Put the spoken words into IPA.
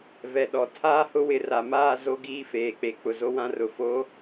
v ɛ˨ ɗ ɔ˨ tʰ aː˦ h ʊ˦ w ɪ˨ r a˨ m aː˦˨ z o˦ ɡ iː˦ f eː˨ k͡p e˨ k͡p ʊ˨ z o˦ w ã˦ r ʊ˨ f o˨˦

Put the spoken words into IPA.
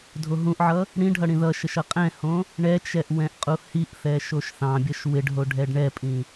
dʱ o ɦ ũ ʔ ʕ ʌ | ɽ ĩ ɖʱ ʌ ɽ ĩ ð ʌ ʃ ə ʃ ʌ qʼ ɛ̃ h õ | ɳ ɛ t͡ʃ ɛ ʔ w ɛ̃ ʔ qʼ u h i ʔ θ ɛ ʃ o ʃ θ ɑ̃ bʲ ʌ ʃ w ɪ ɖ ɦ o ɖʱ ɛ ɖ ɳ ɛ pʼ ĩ

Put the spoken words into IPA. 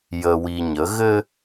j ə˨ w i˨ ɲ ə˨˦ ɣ ɘ˦

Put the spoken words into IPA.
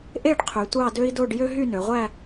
ʔ e˥˧ ɖ qʰ y˩˧ tʷ ɑ˥˧ d ø˥ i̯ d o˥˧ ɖ j ø˥ ɦ y˥˧ n ø˩˧ ʁʷ æ˥˧

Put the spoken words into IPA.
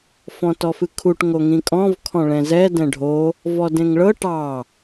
f ɔ̃ t ɔ f ɨ kʰ u ʈ ŋ o ŋ ĩ kʼ ɔ̃ v kʰ ɔ̃ ɭ ɛ̃ z ɛ d ɛ̃ ɖʱ o | v ɔ d ẽ ŋ ɭ ɤ ʈ ɑ

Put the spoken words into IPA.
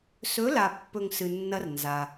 s ɵ˨˦ l a˨ pː ɵ˨ ŋ s ɨ˨ nː ɐ˦ r n z a˧

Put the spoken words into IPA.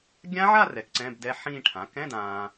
ɡʲ ã˦˥ ʕ a˥˧ r ɛ˩˥ k ǀ ɛ̃˧˥˧ b d ɛ˦˥ ħ ĩː˥˧ ʈʰ ã˩˥ k ɛ̃˧˥˧ d ãː˨

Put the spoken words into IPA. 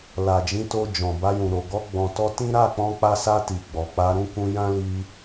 l a˨ d͡ʒ ĩ˨˦ t o˧ d͡ʒ ɔ̃˨ b a˧ j ũ˨ ɾ o˨ ɡ ɔ˧ ɡ͡b ɔ̃˨ t ɔ˧ t ĩ˦ ɾ a˦˨ k͡p ɔ̃˧ k͡p a˧ s a˧ t i˨ ɡ͡b ɔ˨ k͡p a˧ ɾ ũ˦ k ũ˧ j ã˦ l i˧

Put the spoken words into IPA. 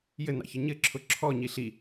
j ɘ n ɑ̰ ç ɘ ɲ ɘ ǁʰ ʊ ǁʰ ɔ ɲ i ɬ i

